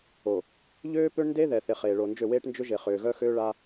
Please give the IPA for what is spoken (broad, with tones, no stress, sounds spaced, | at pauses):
o˨ | ʎ øː˦ p ø˦ ɳ n d e˦ ð ɛ˨ θ e˨ χ eː˨ ɭ o˨ n d͡ʒ ø˦˨ w eː˦ ʈ n d͡ʒ ʏ˦ ʒ e˨ χ ʏː˨ ɣ œ˦ x øː˦ ɭ a˦